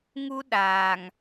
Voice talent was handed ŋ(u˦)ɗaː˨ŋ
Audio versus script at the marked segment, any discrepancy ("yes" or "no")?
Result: no